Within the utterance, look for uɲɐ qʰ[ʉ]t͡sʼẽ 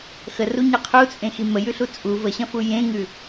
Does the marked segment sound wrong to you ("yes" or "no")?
yes